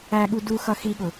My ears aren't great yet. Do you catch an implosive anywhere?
yes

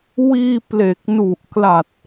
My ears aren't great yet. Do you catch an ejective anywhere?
no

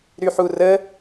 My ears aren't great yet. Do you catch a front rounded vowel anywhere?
yes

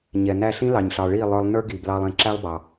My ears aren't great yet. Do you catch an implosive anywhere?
no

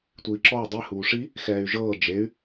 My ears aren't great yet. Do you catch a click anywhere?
yes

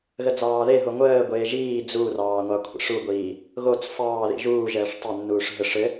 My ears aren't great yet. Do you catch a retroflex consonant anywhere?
yes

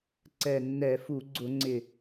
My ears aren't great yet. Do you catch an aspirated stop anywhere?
no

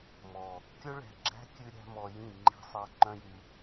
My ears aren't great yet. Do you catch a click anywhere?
yes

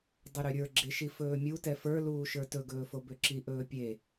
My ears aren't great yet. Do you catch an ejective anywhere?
no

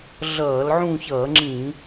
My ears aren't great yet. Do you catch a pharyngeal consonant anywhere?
yes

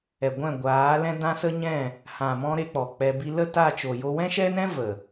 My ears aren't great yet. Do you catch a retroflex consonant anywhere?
no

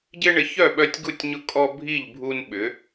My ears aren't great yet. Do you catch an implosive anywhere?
yes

